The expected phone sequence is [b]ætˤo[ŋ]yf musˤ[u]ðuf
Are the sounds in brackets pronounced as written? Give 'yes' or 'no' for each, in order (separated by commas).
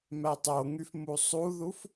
no, yes, yes